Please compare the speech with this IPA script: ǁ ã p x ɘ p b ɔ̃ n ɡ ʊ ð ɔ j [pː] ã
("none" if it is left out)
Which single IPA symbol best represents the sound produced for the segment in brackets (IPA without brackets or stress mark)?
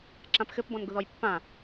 pː